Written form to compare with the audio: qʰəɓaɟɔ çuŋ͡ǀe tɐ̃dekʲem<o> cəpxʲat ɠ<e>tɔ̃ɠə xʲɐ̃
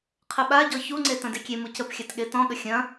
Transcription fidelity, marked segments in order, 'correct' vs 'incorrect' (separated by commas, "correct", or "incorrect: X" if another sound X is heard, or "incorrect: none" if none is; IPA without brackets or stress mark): incorrect: u, correct